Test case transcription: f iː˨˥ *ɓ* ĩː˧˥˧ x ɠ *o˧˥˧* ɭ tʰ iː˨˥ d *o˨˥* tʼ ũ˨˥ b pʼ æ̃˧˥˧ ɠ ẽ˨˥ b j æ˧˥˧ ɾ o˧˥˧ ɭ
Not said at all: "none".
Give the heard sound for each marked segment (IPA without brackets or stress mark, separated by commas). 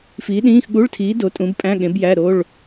ɗ, u˧˥˧, o˨˥